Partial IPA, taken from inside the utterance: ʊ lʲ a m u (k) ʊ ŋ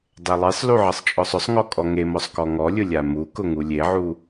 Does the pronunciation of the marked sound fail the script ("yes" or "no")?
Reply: no